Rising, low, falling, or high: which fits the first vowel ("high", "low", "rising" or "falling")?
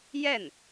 falling